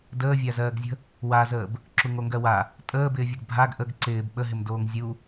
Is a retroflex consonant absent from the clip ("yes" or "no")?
yes